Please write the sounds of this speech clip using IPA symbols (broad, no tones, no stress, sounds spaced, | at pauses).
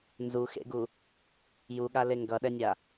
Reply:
n z u x ḛ ɡ u | j u ɠ a l e ŋ ɡ ʌ ɗ ɛ nʲ a